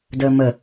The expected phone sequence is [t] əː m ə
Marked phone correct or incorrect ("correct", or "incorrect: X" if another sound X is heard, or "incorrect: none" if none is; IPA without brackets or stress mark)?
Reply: incorrect: d